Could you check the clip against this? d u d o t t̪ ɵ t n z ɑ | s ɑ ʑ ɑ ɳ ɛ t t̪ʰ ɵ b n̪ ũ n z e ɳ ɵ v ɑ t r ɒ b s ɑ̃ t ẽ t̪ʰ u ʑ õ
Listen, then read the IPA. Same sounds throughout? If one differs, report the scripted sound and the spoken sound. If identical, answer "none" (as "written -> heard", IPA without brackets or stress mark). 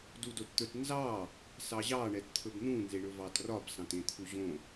none